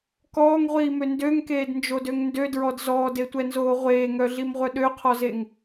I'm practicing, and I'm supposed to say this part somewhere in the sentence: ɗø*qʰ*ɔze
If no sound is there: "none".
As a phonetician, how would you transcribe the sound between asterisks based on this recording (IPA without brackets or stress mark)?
qʰ